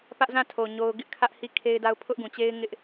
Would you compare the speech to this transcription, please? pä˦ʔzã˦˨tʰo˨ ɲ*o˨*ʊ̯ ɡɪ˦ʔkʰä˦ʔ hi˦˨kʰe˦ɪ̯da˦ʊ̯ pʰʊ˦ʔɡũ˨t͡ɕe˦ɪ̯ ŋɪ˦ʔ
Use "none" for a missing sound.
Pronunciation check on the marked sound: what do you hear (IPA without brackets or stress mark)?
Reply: o˦